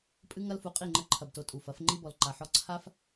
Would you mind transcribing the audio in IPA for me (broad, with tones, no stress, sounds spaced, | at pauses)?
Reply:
pʼ ɨ˧ ŋ ɐ˧ l f u˨ qʼ i˦˨ ŋ͡ǃ ɘ˧ ǃʰ ɐ˨ b t o˨ tʼ u˨ f ɐ˨˦ f ŋ͡ǃ i˦ b ɔ˨ l ǃ a˨ ħ ɔ˧ ǀʰ a˦ f